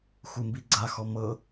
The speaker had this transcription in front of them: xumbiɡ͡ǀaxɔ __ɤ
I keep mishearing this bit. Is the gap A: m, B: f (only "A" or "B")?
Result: A